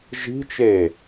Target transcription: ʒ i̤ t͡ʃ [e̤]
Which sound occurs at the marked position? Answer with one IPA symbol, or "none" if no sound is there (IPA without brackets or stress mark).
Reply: e